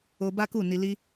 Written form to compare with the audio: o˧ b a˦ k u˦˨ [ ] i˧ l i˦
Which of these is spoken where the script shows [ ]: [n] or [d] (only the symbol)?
n